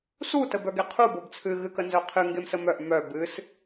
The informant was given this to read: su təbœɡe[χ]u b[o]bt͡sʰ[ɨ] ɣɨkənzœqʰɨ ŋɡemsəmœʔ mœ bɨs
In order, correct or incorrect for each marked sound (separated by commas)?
incorrect, correct, correct